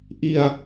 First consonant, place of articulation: glottal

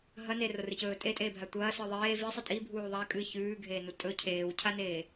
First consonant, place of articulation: glottal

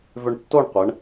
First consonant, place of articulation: labial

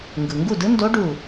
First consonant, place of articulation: velar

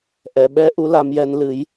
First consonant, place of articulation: glottal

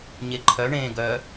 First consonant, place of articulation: palatal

